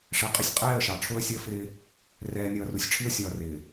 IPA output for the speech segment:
ʂ ɛ˨ qʼ ɪ˦ sʲ qʼ ɛː˦˨ ə̯ ʃ ɑ˨ ʈ͡ʂʰ ʊː˦ ə̯ sʲ əː˦ f ɪː˦ | r ɛː˨ nʲ ʌː˨ r u˨ sʲ ʈ͡ʂʰ i˦ ə̯ sʲ ʌː˨ r ɪː˨

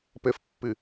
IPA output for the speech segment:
p ɘ f pː ɨ

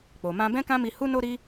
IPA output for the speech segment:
k͡p o˨ m ã˧ b ɛ̃˦ k ã˦ m i˧ h u˦ n o˦ ɾ i˦

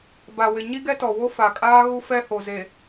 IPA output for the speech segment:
b a˨ w ɪ˨ ɲ i˦ ɡ ɛ˦ t ɔ˨ w o˦ f a˨ kʼ aː˦ ɣ u˦ f ɛ˦ h o˨ z e˨

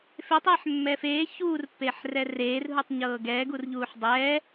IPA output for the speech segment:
f e tˤ ɛː ħ mː ɛ f eː ç uː r pː eː ħ r ɛ r eː r ɦ u tˤ ɲ ɤː ɡ ɛː ɡ u r ʎ uː ħ dˤ ɛː

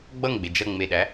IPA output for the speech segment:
ɡ͡b ʌ ŋ ɡ͡b e d͡ʒ ʌ ŋ͡m e ɗ æ

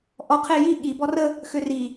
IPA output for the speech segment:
ʔ ɔ qʰ e j i ɠ i b ɔ r ə | x ø r i

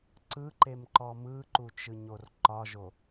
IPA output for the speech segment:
ǀ ɯ ǃ e m ǃ ɔ m ɯ ǃ u t͡ʃ ɯ ɲ o r ǃ ɒ ʒ o

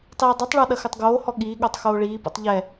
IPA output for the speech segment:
tˤ iː dˤ ɨ tˤ ɭ ɔ ɗ ɐ x ɘ tˤ ɡ oː h ɔ ɠ iː ɠ o tˤ x oː ɭ iː p ṵ tˤ ʎ ɛ

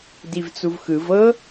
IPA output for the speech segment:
d i v t͡s u v x ɯ v ɤ

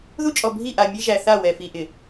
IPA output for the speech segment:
ð u˦ t͡ʃʼ ɔ˨ bʱ i˦˨ ʔ a˨ mʲ e˦ ʒ æ˨ θ a˦˨ w ɛ˨ f i˨ ʔ ɪ˨

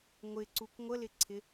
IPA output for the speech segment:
ŋʷ ɪ ǀ u k ŋʷ ə l ɪ ǀʰ ɪ

